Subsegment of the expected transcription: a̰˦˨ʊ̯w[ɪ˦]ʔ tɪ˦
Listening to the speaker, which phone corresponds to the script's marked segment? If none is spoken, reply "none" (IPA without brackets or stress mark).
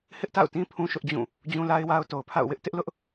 ɪ˦